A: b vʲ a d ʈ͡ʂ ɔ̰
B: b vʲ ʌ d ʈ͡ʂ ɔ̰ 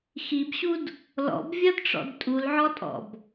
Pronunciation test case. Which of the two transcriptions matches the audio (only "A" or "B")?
B